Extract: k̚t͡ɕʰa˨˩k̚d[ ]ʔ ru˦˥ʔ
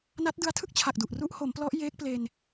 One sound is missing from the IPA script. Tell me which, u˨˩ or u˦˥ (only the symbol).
u˨˩